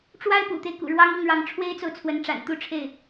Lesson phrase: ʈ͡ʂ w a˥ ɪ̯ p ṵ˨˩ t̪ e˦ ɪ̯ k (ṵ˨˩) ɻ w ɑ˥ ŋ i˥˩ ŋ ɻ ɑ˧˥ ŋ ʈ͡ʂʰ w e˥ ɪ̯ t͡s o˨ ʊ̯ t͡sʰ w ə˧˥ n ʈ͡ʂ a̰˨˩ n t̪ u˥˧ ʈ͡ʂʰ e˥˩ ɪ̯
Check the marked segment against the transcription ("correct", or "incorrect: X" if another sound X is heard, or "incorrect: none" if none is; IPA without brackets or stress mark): correct